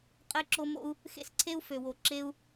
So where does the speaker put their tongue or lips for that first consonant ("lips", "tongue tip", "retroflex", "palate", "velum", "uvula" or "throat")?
uvula